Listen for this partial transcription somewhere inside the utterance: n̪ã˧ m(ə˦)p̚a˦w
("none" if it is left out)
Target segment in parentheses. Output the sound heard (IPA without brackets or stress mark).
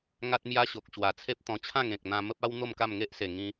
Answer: ə˦